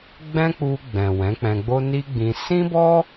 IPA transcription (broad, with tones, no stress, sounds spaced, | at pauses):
ɡ͡b ɛ̃˦ k͡p u˧ ɡ͡b ɛ̃˨ w ɛ̃˨˦ k͡p ɛ̃˧ ɡ͡b o˦ n i˦ ɡ͡b ĩ˧ s ĩ˦ b ɔ˦